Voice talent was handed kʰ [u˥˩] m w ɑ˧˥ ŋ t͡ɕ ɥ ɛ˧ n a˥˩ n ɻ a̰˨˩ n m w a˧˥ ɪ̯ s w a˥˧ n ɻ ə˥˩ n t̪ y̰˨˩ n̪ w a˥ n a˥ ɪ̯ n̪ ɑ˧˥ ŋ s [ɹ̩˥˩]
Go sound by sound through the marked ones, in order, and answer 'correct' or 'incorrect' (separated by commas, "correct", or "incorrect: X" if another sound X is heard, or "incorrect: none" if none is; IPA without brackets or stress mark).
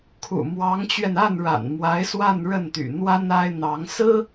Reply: incorrect: ṵ˨˩, incorrect: ɹ̩˥